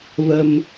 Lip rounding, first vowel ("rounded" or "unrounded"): unrounded